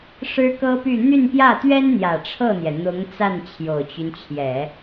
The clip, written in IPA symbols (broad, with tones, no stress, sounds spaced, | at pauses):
ʂ ɻ̩˥ k ɤ˥ p y˥˧ n̪ y˥˧ n p j ä˥˩ t̪ ɥ ɛ˥ n n̪ j ä˨˩ ʈ͡ʂʰ ɤ˥˩ n̪ j ɛ˩ n̪ ʊ˧˥ ŋ t͡s a˥˩ n t͡ɕʰ j o˨˩ ʊ̯ t͡ɕ y˦ n t͡ɕʰ j ɛ˨˩˦